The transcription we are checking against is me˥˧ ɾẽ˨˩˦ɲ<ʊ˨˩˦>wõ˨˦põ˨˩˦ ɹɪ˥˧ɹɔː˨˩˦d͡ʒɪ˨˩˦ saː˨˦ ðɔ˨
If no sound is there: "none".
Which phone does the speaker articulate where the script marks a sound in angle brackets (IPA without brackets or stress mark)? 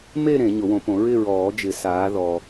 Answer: ʊ˨˩˦